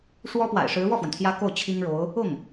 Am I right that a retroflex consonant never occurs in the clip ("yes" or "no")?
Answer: no